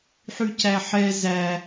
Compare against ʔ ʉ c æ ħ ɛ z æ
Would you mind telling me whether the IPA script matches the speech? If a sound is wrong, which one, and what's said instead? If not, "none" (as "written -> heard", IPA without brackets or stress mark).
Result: ʔ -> ħ